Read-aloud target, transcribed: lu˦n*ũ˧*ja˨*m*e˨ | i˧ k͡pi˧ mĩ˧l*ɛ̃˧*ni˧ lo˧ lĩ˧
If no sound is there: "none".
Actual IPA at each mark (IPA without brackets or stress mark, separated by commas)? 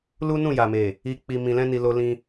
ũ˦˨, m, ɛ̃˦